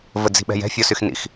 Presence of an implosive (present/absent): present